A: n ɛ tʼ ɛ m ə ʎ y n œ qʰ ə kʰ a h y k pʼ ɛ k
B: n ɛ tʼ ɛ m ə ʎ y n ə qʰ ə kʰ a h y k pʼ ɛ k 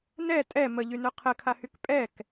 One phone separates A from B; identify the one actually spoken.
A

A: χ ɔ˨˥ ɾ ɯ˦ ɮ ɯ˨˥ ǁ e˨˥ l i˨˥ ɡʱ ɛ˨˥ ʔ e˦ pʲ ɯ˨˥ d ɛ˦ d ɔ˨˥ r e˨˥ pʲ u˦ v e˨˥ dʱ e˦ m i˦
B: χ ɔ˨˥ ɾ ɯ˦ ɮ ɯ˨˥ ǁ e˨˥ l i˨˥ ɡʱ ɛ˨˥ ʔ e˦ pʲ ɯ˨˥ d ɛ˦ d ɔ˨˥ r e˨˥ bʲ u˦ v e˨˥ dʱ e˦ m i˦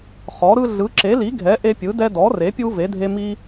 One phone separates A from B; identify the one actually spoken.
A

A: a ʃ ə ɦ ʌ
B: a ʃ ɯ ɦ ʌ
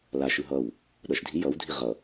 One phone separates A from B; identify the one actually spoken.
B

